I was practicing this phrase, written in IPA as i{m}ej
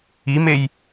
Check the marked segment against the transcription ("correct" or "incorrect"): correct